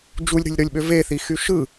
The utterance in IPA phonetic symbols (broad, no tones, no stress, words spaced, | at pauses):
d͡ʒulʲɾṳlʲɾolʲɓø veθixy ʃɯ